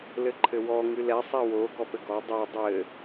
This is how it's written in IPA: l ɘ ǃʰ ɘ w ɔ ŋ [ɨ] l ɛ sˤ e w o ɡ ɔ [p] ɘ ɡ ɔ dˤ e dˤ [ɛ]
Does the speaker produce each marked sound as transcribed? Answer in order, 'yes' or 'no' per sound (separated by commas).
yes, yes, no